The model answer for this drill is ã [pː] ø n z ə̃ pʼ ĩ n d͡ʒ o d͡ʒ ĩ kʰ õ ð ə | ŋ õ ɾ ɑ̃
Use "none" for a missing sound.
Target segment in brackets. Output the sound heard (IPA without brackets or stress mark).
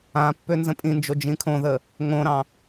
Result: pː